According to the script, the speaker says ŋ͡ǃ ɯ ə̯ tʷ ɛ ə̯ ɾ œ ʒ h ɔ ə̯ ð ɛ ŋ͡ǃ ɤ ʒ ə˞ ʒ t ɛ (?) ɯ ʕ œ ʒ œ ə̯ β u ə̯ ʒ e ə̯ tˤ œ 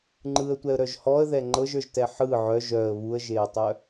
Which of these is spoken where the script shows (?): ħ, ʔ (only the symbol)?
ħ